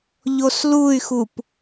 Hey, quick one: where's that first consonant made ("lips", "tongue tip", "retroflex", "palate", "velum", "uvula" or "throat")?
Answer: palate